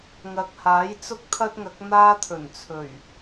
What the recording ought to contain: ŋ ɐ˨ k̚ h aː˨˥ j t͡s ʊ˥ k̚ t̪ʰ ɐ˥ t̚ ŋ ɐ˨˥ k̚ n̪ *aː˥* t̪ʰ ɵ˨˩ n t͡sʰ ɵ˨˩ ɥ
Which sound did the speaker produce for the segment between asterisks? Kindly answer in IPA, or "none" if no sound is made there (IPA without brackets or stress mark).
aː˥